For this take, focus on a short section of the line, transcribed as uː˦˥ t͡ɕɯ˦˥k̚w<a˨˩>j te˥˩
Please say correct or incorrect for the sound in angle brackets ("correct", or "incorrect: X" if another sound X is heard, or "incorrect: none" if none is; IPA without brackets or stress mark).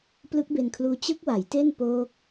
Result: incorrect: a˩˦